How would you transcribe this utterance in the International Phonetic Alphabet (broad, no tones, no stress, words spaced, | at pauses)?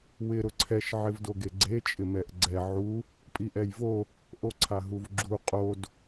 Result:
wɪ ɾʊǀʰɛʃ ʕɪvdoɡeɡ͡ǀe t͡ʃʼɪmɛʔɡ͡ǀɛ ʕu | pʼiʔɛjvo | ʔoǀʰaɦuvɡ͡ǁu qʼod